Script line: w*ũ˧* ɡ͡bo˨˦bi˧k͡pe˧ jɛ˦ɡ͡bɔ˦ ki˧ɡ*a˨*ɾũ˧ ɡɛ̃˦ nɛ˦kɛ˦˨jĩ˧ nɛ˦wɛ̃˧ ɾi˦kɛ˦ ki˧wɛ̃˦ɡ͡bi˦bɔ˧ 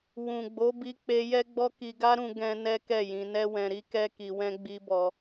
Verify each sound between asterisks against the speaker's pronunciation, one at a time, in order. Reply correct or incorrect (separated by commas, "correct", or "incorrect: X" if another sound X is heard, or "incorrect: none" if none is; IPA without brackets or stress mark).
incorrect: ũ˨, incorrect: a˦